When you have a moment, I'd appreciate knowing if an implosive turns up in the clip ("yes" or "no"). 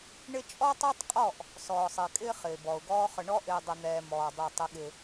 yes